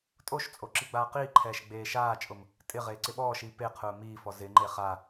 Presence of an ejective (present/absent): present